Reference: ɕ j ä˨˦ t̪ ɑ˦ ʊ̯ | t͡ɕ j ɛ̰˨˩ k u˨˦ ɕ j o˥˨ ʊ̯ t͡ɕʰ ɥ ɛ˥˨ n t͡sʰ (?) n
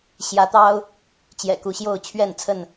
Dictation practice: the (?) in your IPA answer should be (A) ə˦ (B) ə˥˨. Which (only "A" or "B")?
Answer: B